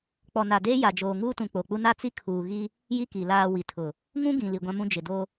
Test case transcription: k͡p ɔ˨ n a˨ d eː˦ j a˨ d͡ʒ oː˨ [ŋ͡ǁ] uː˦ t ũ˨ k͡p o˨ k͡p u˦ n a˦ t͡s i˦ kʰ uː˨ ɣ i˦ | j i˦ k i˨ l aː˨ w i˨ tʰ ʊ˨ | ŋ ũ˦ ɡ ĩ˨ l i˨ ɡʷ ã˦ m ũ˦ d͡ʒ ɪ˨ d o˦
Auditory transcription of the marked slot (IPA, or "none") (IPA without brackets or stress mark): ŋ